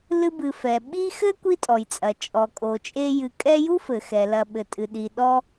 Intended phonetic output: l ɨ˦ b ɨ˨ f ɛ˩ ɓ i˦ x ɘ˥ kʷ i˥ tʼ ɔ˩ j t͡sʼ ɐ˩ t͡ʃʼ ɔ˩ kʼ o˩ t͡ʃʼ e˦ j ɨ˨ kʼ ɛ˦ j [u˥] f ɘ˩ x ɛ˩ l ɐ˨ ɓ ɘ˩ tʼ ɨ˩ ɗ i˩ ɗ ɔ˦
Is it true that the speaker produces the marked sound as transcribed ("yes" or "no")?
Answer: yes